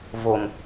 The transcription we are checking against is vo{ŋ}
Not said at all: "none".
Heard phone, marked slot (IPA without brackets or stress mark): ŋ